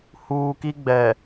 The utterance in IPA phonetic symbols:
h uː˦ k i˦ ɡ͡b ɛ˨

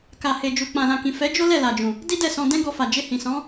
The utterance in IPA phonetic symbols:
k a˨ h e˨ d͡ʒ u˨ k͡p ã˨ l ã˨ k ĩ˨ f ɛ˨˦ d͡ʒ o˦ l ɛ˦˨ l a˨ d͡ʒ ũ˨ | d i˦ d ɛ˦˨ s ɔ̃˧ d ɛ̃˦ ɡ ɔ˧ f a˨ d͡ʒ e˧ h ĩ˨ s ɔ̃˨˦

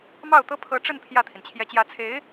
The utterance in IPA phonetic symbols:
m ɑ˥˩ ʊ̯ t̪ ɤ˥ pʰ ɤ˧˥ ʈ͡ʂ ə˥˧ n pʰ j ä˥˩ t̪ʰ i˩ n t͡ɕʰ j ɛ˧˥ t͡ɕ j ä˧˥ t͡sʰ e˧˥ ɪ̯

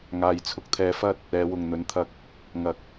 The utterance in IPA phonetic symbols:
ŋ aː˨ j t͡sʰ ʊ˧ k̚ t̪ʰ ɛː˧ f ɐ˥ t̚ | ɛː˨˧ w ʊ˨ ŋ n̪ ɵ˨˥ n t̪ʰ ɐ˧ k̚ | ŋ ɐ˨˥ k̚

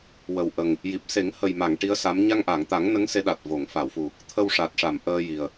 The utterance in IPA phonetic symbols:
w ə˨˩ w ʔ ə˨˩ ŋ | j i˨˩ p̚ s e˨˩˦ ŋ h ə˨˩ j m a˨˩˨ ŋ ʈ i˧˥ ə̯ s a˧˥ m ɲ a˧ ŋ ʔ a˨˩˨ ŋ t̪ a˨˩˦ ŋ n ə˧˥ ŋ s e˧˥ ɗ a˨˩ t̚ v o˨˩˨ ŋ f a˨˩˨ w f u˨˩ | t̪ʰ ə˧ w ʂ a˨˩ t̚ ʂ a˨˩˨ m ʔ əː˧ j i˨˩ ə̯

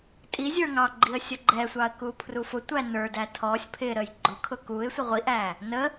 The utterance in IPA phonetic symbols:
tʼ i zʲ ə˞ ŋ ɑ ɡ͡ǃ i ə̯ sʲ ʌ ɡ͡ǃ ɛ sʷ ɑ ə̯ k u pʰ r u f ʊ tʷ æ n ə˞ d æ tʰ ɔ sʲ pʰ ɪ ɾ ə j ɡ͡ǃ ʊ kʰ ʊ k u ɪ̯ sʷ ə ʁʷ i ʔ æ | n ə

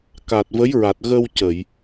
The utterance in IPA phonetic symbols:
k a˨˩ t̚ v ə˧˥ j ɹ a˨˩ t̚ ɣ ə˧ w c ə˨˩˨ j

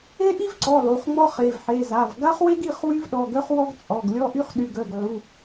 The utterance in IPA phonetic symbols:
e˥ ʔ i˥ v ǀ ɔ˩˧˩ lˠ u˩˧˩ χ ŋ͡m ɔ˥ χ e˩˧˩ v ħ e˩˧˩ z a˩˧˩ v ɡ a˥ χ w e˥ ɡ i˩˧˩ χ w y˥ v ɗ ɔ˩˧˩ ɡ œ˥ χ w ɔ˥ ɡ t͡sʼ ɔ˩˧˩ ɡ lʲ ɔ˥ ʔ y˥ χ ɗ y˩˧˩ ɡ œ˩˧˩ ɡ ʕ u˩˧˩

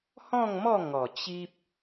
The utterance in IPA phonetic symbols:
h ɔ̃˥˧ ŋ m ɔ˥˧ ŋ ɔ˨˩ t͡ɕ i˦ p̚

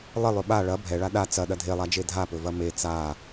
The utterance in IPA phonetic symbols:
lˠ ə lˠ ɵ ɓ a ɭ ɐ bʱ ɛ ɭ a ɗ a t͡s ɐ ɗ ɐ dʱ e lˠ a d͡ʒ e dʱ a p ɵ v ɐ m e t͡s a

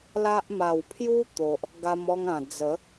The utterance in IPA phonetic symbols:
l a˦ ʔ m a˨˩ w pʰ j u˦ t̪ o˨ ʔ | ɡ a˧ m ɔ˧ ŋ ã˨˩ d͡z ə˨˦

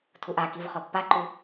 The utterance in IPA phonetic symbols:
tʰ u ʔ a k i v χ ɔ pː a ǃ u

